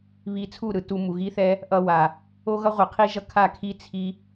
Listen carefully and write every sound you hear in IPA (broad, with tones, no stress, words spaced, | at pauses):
βi˧t͡sʰu˦˨ ɾɯ˧ tu˧ mu˨ɣi˦θɛ˦ | ʔʌ˧wa˨ | o˦ɣʌ˦ʁʷi˨qʰi˦ ʒʌ˦kʰa˦˨ kʰi˦ t͡sʰi˦